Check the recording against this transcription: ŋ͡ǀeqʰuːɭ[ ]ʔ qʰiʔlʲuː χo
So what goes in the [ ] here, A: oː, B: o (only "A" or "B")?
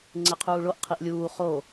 B